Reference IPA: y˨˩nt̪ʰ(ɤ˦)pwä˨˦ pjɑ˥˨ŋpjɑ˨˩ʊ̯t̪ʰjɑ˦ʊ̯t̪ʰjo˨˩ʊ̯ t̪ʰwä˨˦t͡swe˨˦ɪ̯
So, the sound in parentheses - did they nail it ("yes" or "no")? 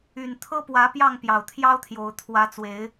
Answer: yes